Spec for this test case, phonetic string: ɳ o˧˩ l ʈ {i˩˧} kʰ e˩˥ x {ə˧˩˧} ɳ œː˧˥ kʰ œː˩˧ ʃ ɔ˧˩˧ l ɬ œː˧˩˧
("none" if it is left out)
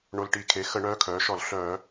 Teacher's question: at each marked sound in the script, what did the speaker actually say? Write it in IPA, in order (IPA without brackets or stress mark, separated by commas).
i˧˩˧, ə˧˩˧